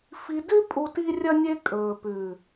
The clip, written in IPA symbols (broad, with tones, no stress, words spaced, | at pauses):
fi˧dʉ˦ pʼu˦ ti˦rʲɐ˦nʲe˦ kʼɵː˨pʉ˨